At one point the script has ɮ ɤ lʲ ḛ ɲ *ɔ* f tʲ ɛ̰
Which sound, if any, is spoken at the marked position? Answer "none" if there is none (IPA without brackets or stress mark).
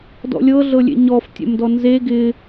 ɔ